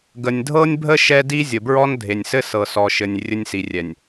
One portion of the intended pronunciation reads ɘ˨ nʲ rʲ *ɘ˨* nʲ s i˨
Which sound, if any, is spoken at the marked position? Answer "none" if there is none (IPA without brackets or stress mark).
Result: ɘ˦